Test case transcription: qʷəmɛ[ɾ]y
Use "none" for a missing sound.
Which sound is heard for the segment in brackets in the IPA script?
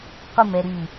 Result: ɾ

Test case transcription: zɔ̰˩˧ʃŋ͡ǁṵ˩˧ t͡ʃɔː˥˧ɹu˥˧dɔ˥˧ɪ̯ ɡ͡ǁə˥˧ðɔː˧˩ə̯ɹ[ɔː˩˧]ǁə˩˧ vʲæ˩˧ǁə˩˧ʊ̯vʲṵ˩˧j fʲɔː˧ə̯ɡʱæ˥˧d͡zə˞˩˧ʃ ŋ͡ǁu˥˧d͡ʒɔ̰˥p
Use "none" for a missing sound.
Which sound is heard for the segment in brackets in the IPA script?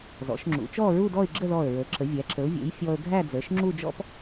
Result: əː˩˧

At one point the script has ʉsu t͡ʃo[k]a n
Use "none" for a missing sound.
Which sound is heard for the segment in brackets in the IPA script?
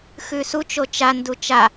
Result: t͡ʃ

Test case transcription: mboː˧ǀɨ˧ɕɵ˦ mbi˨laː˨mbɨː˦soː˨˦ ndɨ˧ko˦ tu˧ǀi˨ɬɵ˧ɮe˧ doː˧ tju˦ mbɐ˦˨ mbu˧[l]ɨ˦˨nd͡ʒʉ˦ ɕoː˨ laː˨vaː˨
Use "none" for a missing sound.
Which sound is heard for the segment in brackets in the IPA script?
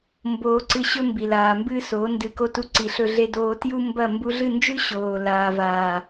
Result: ɮ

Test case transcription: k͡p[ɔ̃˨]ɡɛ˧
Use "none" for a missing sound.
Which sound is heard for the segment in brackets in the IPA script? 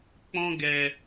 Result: ɔ̃˦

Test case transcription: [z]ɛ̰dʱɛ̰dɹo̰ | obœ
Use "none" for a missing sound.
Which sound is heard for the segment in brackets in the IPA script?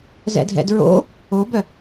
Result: z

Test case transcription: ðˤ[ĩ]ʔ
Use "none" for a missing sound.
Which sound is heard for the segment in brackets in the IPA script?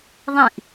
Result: ĩ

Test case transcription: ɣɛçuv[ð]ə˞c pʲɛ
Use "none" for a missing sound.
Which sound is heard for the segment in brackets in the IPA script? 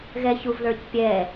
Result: ð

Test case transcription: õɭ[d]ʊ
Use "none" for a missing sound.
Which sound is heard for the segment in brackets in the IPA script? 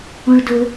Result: d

